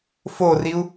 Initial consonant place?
labial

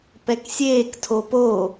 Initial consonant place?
labial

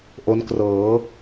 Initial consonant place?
glottal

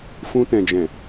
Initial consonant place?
labial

